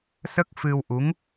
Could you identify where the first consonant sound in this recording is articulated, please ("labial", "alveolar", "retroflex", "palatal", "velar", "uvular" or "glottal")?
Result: alveolar